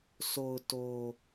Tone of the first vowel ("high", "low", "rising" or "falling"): low